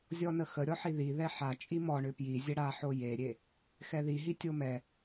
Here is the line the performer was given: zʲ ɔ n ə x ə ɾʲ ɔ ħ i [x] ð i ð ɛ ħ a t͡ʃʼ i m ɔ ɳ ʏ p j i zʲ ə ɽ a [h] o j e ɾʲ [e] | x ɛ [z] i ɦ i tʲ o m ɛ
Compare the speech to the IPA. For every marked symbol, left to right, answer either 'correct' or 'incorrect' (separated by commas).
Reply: incorrect, incorrect, correct, incorrect